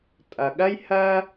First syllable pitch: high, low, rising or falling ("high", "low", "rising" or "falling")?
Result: low